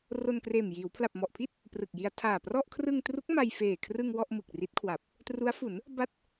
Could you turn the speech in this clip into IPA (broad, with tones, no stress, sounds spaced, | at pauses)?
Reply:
r o˧ n k r eː˨˩ m j iː˩˦ w pʰ l a˨˩ p̚ m ɔ˨˩ ʔ pʰ i˥˩ t̚ | p r ɯ˨˩ k̚ j i˧ a̯ tʰ aː˨˩ p r ɔ˥˩ ʔ kʰ r ɯ˧ ŋ t r u˦˥ k̚ m a˧ j f eː˨˩ kʰ r ɯ˧ ŋ w ɔ˥˩ ʔ m ɯ˨˩ k̚ r i˦˥ t̚ kʰ w a˨˩ p̚ | t r u˦˥ a̯ f u˩˦ n | b a˥˩ t̚